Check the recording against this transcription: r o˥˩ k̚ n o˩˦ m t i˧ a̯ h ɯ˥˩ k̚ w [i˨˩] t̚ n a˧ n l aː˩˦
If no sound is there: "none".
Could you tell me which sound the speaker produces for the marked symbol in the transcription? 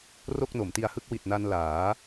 i˨˩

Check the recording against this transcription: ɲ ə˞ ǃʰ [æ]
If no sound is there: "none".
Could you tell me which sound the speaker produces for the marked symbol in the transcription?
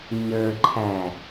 æ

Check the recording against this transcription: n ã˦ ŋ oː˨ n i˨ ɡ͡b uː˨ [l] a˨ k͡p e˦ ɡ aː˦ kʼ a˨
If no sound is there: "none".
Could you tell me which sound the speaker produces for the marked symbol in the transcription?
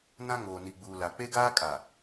l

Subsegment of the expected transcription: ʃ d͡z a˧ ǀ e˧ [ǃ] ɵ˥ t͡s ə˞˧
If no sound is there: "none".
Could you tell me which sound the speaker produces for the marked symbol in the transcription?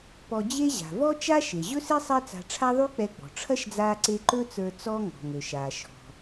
ǃ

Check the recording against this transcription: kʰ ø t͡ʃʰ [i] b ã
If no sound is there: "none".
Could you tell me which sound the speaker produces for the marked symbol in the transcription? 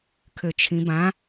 ĩ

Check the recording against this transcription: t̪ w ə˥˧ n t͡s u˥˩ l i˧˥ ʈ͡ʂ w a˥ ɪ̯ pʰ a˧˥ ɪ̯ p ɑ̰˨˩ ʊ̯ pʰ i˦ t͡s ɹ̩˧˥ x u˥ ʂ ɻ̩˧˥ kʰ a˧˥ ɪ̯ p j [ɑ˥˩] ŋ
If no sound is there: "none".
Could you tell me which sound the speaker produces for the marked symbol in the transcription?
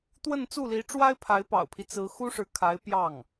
ɑ˥˩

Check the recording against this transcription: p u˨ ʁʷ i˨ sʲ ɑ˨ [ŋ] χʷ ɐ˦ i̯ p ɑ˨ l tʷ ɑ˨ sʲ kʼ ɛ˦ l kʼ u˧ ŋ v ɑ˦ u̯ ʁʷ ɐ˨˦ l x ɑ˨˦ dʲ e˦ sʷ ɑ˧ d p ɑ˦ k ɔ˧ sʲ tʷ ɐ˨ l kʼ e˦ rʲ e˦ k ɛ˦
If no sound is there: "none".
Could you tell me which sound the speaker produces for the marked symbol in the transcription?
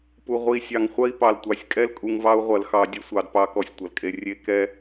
ŋ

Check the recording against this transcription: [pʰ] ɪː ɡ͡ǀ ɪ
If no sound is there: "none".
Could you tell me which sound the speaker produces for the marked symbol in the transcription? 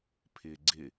pʰ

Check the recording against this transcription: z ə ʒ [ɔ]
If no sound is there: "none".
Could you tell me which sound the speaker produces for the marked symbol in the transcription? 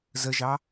ɑ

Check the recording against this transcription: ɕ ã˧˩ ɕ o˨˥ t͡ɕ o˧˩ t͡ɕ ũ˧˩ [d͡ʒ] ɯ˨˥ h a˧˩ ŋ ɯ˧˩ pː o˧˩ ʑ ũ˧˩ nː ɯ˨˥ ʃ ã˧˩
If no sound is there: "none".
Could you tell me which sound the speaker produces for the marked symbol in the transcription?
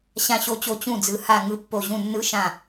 d͡z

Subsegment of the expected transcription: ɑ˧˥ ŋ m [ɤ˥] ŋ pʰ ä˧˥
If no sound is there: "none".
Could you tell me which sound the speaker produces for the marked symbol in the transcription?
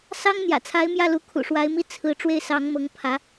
ɤ˧˥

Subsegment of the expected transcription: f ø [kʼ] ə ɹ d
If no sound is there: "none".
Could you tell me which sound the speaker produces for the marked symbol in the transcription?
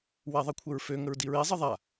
ŋ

